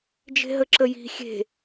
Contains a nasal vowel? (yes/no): no